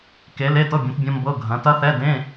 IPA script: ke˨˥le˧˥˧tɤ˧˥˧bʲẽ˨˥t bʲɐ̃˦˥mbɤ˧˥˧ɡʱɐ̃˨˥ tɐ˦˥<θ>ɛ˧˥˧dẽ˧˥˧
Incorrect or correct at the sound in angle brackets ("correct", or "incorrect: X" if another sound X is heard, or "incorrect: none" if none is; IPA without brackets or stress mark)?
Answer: correct